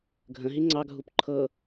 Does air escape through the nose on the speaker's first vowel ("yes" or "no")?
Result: yes